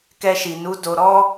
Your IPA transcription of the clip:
kɛ˧ʃi˨nu˨˦ do˧ɾɔ˦

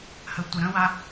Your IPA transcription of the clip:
hətʷəɾə̃wa

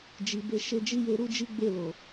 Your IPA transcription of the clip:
d͡ʒi˨ be˧ ʃe˧d͡ʒi˦ je˧ɾu˦ d͡ʒi˦ɡ͡be˦˨ lo˨

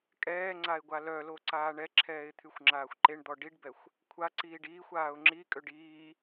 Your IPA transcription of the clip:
kʼɛːŋ͡ǀaɪ̯ ɡʷalœlo ǀaːɳɛǁʰɛːɪ̯ t̪ʰyxʷŋ͡ǁaːxʷǃeɳd̪ɔ ɖiɖbɛxʷ | kʷʰaǀiːɖ iːxʷ aːʊ̯ŋ͡ǁikʼøɖ iː

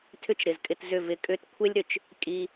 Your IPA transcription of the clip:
tʰʏ˦t͡ʃɾɪ˨zkʼɪ˧tzʏ˦˨ vɪ˧kʼʏ˦t kʷʰe˦lʲɾʏ˨t͡ʃ | kʼi˧

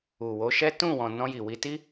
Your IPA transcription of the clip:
u˨wo˨˦ʃɛ˦ tũ˦˨wɔ̃˨ nɔ̃˧ji˨wi˧ti˦

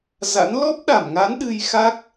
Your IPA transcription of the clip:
za̰˧˥n lɔ˦˥p̚ɗa˧˩mŋa˨˦n ɗɨ˧jxa˦˥k̚

